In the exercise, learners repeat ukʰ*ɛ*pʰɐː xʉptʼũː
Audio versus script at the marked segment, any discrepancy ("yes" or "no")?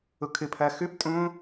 yes